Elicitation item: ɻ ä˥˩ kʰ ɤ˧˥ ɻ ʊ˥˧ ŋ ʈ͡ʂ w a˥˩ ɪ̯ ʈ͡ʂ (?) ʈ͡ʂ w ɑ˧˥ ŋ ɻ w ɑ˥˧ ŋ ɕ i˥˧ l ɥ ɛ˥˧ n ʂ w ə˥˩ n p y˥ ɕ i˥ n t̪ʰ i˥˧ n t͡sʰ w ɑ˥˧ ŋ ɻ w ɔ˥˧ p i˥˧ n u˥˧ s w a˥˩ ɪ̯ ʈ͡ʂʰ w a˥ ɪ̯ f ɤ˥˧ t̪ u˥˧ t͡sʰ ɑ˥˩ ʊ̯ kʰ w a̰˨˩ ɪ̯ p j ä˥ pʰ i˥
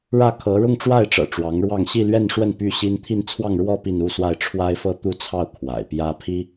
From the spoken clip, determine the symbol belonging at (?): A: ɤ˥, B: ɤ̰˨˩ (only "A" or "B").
B